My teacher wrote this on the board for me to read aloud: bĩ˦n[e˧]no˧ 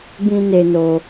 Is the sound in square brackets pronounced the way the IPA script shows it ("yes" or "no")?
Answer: yes